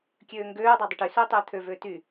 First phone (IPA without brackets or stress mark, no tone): kʲ